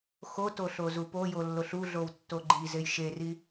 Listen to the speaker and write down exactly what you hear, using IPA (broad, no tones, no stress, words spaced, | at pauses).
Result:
xoto ɬozupojo lːoɬuɮow tːoɡ͡ǃizej ʃeri